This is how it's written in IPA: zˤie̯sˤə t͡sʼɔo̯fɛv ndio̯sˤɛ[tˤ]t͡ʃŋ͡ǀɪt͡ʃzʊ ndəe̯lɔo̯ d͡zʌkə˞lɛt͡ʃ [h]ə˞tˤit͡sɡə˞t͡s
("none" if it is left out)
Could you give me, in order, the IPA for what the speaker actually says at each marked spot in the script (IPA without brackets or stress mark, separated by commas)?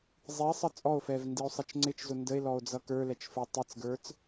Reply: none, f